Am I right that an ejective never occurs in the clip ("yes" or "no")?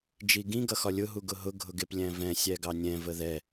yes